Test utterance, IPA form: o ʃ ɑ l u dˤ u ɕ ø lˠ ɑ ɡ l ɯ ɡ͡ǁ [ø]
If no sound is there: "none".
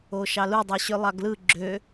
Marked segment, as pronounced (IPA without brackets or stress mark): ø